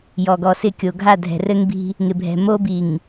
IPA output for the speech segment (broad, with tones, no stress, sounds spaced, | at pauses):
j ɔ˨ ɡ ɔ˨ s ɪ˦˨ kʲ o˨ ɡʱ a˦˨ dʱ ɛ̤˨ r ɘ˦ ŋ b i̤˦ | ŋ ɪ˨ bʱ ɛ̤˨ m o˦ b i˨ ŋ